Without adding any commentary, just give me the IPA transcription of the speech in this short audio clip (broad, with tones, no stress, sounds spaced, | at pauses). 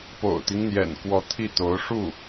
p o̰˨˩ ʊ̯ t̪ i˦ ŋ n̪ j ɛ̰˨˩ n k w ɔ˧˥ t̪ʰ i˥˩ t̪ o˧˥ ʊ̯ ʂ u˥˩